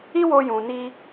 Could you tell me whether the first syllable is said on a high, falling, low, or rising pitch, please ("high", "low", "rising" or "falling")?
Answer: high